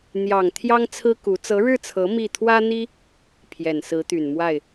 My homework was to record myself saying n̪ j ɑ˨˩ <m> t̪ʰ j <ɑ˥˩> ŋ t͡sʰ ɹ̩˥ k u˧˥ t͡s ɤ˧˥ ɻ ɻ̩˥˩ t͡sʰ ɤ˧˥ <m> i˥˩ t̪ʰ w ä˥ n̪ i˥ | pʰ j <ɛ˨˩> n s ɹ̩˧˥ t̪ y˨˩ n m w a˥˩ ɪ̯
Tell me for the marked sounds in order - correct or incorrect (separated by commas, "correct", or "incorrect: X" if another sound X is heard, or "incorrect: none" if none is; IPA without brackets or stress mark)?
incorrect: ŋ, incorrect: ɑ˥, correct, correct